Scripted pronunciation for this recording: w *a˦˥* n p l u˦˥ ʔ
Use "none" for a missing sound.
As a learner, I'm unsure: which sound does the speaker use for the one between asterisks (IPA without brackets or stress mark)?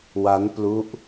a˦˥